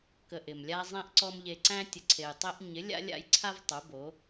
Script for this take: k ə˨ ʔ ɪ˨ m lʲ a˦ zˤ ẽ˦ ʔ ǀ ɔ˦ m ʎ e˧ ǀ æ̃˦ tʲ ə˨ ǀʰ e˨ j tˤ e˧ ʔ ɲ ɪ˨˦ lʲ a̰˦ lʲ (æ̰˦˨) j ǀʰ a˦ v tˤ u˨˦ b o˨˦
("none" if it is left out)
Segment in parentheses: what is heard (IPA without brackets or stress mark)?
a̰˦˨